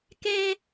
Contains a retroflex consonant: no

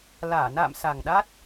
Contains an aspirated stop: no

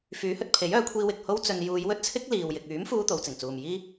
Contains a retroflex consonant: no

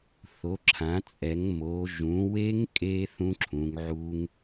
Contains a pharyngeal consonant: yes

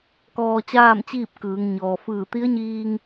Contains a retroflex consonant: no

